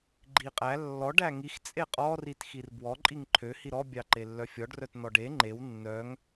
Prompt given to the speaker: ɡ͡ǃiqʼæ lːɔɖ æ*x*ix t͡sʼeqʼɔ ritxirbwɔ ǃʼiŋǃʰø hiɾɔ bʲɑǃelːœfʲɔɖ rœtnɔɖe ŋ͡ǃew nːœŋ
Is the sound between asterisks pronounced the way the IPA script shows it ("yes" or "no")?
no